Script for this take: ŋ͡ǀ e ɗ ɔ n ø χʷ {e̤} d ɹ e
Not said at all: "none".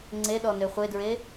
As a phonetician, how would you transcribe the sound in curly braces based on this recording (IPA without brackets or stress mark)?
e